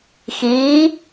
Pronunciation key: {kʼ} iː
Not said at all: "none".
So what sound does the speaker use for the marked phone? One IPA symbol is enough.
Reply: x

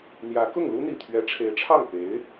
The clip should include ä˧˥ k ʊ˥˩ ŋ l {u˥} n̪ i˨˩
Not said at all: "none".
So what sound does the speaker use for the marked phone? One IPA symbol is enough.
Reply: u˥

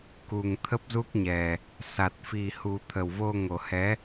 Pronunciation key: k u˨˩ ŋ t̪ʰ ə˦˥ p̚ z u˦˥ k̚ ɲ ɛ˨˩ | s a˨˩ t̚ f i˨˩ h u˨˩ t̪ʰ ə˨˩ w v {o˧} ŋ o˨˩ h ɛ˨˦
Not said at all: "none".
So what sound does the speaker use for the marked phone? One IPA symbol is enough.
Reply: o˧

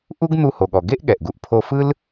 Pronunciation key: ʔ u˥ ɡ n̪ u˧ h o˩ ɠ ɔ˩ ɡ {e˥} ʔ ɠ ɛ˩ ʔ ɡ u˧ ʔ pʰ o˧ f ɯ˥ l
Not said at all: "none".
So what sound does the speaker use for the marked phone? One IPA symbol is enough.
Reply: e˥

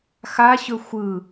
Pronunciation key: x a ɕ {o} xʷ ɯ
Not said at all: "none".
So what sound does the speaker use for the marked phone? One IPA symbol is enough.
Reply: ɵ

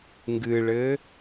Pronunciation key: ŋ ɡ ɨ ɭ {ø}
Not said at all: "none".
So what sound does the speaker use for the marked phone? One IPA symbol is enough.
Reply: ɘ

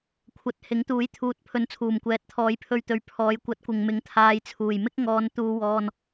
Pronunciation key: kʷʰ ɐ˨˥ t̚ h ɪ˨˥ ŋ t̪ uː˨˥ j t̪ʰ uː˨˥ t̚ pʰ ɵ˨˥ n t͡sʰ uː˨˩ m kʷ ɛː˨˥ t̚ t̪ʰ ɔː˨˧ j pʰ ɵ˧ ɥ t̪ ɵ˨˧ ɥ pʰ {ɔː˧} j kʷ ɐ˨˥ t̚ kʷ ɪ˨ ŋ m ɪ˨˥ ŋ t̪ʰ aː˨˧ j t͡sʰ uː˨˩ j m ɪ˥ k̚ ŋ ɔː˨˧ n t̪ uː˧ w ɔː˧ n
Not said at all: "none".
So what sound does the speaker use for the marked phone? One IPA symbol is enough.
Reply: ɔː˨˧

